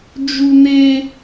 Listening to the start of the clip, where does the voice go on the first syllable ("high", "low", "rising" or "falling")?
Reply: high